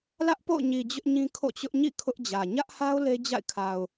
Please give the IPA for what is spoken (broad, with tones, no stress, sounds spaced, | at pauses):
l ä˦ ʔ p o̰˦˨ ʊ̯ ɲ i˨ d͡ʑ ʊ˦ ʔ ɲ ĩ˦ kʰ o̰˦˨ t͡ɕ ʊ˦ ʔ ɲ ḭ˦˨ kʰ ʊ˦ ʔ d͡ʑ ä˨ ɲ ä˦ ʔ h a˦ ʊ̯ l e˦ d͡ʑ a̰˦˨ ɪ̯ kʰ a˨ ʊ̯